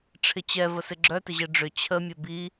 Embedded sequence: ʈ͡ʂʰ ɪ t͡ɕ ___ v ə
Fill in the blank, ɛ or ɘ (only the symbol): ɛ